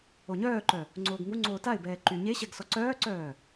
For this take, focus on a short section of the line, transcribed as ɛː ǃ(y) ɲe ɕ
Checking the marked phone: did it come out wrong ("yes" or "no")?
no